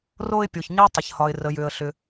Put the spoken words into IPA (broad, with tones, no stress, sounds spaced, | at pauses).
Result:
r o˧ ɪ̯ pʲ o˩ ç ɲ e˥ tˤ ə˩ ç h ɒ˩ ɪ̯ r ə˩ j ʏ˩ ə̯ ɬ ʏ˩